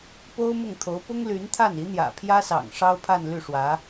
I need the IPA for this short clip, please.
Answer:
po˥ʊ̯ mʊ˥˩ŋt̪ʰo˧˥ʊ̯ pʊ˥ŋly˧˥nt̪ʰa˥˩n i˧˥n̪jä̰˨˩pʰjä˥sɑ̰˨˩ŋ ʂɑ˥ʊ̯pʰa˥˧nly˥˩ʂwä˧˥

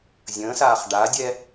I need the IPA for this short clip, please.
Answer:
zʲə̃ːsaːχ ɖadʲɛ

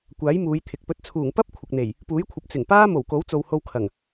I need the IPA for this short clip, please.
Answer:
kʷaː˨˥j muː˨˧jt̪ʰɪ˨k̚ pɵ˨˥t̚t͡sʰuː˨˩ŋ pɐ˥p̚ kʷʰɪ˨k̚n̪e˨˩j | puː˨˥jkʷʰɐ˨p̚ t͡sɪ˨˩ŋpaː˥ mo˨˩wko˨˥wt͡so˨w ho˧wkʰɐ˨˩ŋ

